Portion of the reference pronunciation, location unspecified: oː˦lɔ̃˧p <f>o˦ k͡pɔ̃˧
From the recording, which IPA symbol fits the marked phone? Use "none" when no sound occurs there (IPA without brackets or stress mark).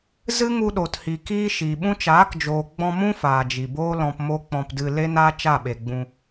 m